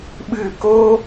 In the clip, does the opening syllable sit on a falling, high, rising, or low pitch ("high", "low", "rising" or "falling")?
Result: falling